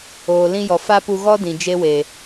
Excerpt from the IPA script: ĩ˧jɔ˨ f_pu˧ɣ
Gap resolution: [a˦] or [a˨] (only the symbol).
a˦